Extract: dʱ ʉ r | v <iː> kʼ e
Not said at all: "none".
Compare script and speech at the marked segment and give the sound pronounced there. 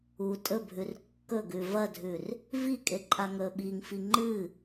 i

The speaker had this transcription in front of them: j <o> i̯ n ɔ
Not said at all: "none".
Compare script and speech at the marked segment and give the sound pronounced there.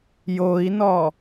o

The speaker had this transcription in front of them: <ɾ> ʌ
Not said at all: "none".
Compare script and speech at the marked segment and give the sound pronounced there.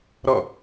ɾ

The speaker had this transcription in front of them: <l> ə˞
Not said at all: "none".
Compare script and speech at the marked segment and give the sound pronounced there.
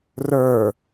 r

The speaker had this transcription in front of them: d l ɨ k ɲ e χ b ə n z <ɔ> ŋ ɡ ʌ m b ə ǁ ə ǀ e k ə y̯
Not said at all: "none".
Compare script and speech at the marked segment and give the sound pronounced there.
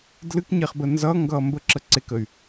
ʌ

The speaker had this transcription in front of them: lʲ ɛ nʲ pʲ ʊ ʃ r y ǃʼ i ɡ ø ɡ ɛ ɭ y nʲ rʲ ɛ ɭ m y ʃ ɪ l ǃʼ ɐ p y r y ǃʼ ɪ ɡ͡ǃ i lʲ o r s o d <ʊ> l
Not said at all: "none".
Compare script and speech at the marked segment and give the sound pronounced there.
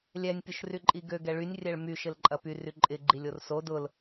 ʊ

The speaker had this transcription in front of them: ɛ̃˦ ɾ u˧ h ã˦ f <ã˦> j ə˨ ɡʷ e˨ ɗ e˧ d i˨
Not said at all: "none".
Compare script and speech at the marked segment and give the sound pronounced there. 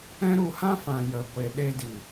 ã˨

